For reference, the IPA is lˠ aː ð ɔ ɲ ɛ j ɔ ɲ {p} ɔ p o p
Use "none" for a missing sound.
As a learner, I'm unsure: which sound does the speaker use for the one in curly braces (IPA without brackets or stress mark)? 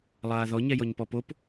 p